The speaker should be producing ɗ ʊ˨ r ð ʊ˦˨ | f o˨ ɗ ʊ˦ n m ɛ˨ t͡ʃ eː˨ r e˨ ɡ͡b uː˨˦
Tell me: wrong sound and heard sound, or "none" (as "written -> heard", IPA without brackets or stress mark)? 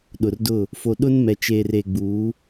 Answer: ð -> d